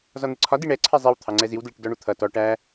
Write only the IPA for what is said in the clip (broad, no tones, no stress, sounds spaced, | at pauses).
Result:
z ɒ n̪ ɪ ǀʰ ɒ d i ɳ ɛ ǀʰ ɛ zˤ i w t̪ʰ ɑ ŋ͡ǀ ɛ z i w d l ɪ ʈ d ɔ ɳ u t̪ʰ ʌ t ɔ ʈ æ